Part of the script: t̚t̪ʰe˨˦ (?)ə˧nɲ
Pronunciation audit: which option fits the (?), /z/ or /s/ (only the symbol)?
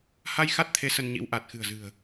s